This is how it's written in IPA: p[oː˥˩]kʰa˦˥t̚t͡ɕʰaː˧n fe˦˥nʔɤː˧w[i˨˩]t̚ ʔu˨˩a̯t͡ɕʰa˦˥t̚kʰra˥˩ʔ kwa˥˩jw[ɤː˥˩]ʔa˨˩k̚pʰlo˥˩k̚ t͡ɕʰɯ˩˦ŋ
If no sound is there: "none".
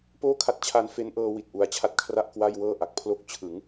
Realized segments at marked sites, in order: oː˥˩, i˨˩, ɤː˥˩

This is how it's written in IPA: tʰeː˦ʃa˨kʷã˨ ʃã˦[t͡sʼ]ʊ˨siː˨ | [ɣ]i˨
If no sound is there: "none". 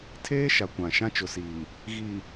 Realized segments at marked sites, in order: t͡ʃ, ɣ

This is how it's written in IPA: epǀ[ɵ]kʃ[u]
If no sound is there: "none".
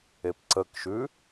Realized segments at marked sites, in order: ə, ʉ

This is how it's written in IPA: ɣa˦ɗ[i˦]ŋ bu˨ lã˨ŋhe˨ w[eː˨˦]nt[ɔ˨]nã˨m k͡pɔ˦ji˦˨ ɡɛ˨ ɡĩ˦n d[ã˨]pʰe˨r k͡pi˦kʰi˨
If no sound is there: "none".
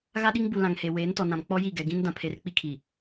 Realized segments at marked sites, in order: i˦, eː˨˦, ɔ˨, ã˨

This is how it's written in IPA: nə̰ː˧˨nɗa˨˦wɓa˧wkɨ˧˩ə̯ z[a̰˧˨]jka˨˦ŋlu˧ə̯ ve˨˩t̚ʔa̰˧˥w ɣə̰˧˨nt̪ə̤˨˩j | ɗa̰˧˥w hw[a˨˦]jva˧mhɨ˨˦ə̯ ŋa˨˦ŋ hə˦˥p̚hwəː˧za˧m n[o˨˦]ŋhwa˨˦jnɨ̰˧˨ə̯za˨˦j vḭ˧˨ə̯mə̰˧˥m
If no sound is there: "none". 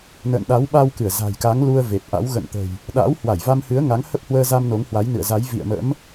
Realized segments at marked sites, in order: a̤˨˩, a˧˩, o˨˦

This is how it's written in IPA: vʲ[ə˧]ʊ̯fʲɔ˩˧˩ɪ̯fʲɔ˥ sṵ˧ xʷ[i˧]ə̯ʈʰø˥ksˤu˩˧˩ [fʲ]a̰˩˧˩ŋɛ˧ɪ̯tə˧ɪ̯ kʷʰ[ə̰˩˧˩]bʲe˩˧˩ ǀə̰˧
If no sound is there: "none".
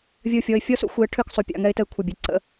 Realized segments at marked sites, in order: ə˧, i˧, pʲ, ə˩˧˩

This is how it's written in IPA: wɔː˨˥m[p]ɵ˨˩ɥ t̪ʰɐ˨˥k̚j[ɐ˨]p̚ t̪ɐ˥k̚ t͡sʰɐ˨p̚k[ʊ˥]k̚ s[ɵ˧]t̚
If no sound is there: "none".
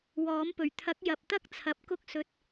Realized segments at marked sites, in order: p, ɐ˨, ʊ˥, ɵ˧

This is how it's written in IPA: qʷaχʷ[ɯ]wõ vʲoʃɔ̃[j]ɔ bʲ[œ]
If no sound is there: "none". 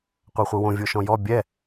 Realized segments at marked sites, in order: ɯ, j, ɛ

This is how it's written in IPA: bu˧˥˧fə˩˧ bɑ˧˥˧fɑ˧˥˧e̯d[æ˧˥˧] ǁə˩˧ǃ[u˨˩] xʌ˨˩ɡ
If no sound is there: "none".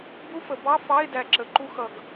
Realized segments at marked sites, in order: æ˨˩, u˧

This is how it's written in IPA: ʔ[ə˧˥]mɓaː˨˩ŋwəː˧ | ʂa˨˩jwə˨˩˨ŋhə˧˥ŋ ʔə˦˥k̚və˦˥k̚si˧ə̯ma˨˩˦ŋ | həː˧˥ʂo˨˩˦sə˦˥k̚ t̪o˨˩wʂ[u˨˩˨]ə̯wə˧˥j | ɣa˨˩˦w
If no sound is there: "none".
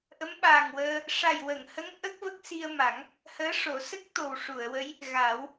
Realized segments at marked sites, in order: ə˧˥, u˨˩˨

